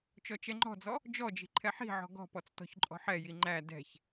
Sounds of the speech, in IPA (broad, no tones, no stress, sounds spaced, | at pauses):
t͡ʃ ɔ t͡ʃ ɛ ŋ͡ǃ ɔ̤ d͡z ɔ | d͡ʒ ɔ d͡ʒ i̤ ǃʰ ɛ ħ i̤ ʕ ɔ̤ ɡ ɔ̤ p ɔ t͡s t ɔ̤ ç ǃʼ ɔ̤ ħ ɛ j i ŋ͡ǃ æ d ɛ̤ ç